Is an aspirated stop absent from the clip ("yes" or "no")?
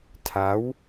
no